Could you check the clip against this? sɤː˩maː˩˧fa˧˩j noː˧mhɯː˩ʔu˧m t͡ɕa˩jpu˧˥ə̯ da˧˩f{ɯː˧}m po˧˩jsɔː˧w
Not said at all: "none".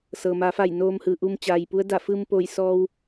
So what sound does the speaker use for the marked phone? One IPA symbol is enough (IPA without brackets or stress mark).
ɯː˧